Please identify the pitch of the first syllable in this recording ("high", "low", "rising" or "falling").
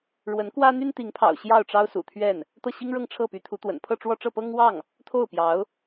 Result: rising